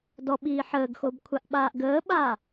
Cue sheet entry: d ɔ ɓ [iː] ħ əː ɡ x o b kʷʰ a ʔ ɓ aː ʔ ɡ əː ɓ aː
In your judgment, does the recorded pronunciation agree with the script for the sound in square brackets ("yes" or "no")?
yes